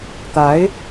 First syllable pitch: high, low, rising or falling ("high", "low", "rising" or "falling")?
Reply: rising